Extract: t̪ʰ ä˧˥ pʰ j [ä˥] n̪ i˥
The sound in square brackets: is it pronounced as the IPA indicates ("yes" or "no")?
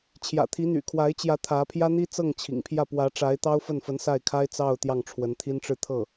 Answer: yes